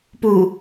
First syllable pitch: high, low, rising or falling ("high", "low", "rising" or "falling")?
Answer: low